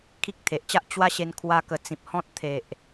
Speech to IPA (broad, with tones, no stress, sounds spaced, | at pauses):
kʰ i˦ k̚ t̪ʰ e˨ ʔ t͡ɕ a˦ ʔ t͡ɕ w a˦ ɕ e˧ n kʰ w a˦ k ə˧ t͡s ĩ˨ p̚ h ɔ̃˦ t̚ t̪ʰ e˨ ʔ